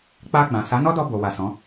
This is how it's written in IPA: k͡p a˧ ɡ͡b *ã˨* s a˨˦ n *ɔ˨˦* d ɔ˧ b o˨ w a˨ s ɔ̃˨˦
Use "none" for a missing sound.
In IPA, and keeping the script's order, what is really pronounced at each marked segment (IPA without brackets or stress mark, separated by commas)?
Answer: ã˨, ɔ˦